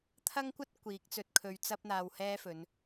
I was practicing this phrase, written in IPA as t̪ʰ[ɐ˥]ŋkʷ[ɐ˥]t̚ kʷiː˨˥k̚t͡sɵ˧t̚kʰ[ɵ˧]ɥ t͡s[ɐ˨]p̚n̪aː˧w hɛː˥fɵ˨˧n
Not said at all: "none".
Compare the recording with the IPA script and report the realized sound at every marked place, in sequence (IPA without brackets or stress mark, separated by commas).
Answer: ɐ˥, ɐ˥, ɵ˧, ɐ˥